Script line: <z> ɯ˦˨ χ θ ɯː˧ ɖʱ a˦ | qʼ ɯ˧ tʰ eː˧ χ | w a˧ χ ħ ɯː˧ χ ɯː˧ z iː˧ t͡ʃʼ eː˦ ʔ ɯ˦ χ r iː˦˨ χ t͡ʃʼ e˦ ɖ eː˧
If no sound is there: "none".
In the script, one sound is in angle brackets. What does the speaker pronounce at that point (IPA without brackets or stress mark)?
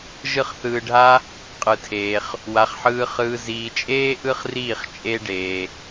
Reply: ʒ